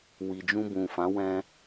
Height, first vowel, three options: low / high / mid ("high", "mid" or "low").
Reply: high